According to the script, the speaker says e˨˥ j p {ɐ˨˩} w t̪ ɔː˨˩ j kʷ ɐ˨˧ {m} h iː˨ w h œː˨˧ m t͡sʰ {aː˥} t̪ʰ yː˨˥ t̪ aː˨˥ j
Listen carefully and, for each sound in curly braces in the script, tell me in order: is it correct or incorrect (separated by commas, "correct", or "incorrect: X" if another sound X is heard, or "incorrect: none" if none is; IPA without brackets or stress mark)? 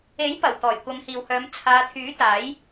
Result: correct, correct, incorrect: aː˨˧